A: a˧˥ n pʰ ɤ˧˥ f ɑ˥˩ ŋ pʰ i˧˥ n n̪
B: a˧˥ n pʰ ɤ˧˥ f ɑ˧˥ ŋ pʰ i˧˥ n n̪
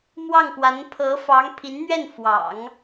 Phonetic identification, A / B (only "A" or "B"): B